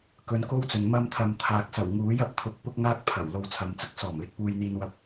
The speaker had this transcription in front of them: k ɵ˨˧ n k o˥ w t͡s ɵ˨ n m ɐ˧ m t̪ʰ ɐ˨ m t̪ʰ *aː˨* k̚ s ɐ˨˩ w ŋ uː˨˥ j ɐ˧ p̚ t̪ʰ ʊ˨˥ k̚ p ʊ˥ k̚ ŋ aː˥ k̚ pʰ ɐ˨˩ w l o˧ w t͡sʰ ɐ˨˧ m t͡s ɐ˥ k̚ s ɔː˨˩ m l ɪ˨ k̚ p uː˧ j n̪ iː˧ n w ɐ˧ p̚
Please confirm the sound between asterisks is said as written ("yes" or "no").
yes